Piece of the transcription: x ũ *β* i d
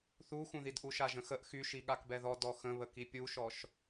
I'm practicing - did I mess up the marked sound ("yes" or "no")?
yes